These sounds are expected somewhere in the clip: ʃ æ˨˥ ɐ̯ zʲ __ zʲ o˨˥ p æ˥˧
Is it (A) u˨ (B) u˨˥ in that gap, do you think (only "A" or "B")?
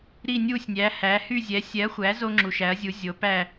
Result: B